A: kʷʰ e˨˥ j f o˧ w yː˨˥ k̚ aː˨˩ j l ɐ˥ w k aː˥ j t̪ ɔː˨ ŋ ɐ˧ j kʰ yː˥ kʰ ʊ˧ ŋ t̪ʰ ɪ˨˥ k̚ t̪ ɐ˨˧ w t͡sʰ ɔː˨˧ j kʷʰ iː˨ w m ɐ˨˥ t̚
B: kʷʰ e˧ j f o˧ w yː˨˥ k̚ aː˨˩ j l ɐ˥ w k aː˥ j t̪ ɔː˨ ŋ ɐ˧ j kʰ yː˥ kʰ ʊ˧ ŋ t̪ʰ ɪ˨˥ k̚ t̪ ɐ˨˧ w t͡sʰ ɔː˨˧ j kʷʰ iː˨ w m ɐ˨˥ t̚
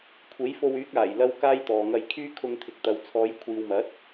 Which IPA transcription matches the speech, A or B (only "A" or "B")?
A